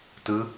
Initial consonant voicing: voiceless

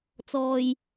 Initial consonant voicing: voiceless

